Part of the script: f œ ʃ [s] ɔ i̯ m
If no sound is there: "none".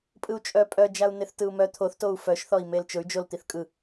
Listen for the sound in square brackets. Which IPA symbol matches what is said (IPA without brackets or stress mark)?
θ